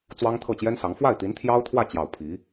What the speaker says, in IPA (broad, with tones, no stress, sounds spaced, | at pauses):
t͡s w ɑ˥ ŋ t̪ʰ ɤ˥˩ t͡ɕ j ɛ˥ n s ɑ˧˥ ŋ f w a˥˩ ɪ̯ t̪ i˧˥ n t̪ʰ j ɑ˥ ʊ̯ t̪ʰ w ä˥˧ t͡ɕ j ɑ˥˩ ʊ̯ pʰ i˧˥